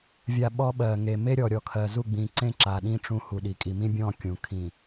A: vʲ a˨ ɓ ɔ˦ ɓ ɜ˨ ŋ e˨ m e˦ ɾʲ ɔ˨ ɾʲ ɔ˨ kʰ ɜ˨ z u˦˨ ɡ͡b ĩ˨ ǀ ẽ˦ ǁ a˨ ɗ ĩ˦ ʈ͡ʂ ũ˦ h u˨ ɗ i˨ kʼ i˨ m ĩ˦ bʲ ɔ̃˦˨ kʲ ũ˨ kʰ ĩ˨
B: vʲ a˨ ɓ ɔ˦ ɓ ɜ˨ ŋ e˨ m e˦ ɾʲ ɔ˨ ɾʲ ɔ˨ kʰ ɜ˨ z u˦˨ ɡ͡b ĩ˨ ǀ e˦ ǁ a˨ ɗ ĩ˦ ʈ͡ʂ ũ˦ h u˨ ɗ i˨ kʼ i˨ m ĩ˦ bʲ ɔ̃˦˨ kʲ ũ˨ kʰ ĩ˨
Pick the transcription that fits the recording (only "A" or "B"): A